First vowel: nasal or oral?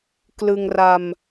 oral